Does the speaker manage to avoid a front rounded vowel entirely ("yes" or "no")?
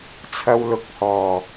yes